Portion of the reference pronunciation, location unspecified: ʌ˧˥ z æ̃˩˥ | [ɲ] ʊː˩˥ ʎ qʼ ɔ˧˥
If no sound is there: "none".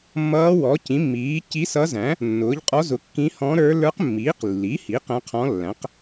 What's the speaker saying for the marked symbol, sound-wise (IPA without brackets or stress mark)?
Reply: nː